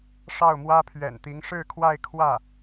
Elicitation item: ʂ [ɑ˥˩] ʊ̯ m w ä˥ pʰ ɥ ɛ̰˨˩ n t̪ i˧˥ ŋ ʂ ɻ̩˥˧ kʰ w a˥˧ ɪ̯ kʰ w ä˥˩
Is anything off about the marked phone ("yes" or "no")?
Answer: no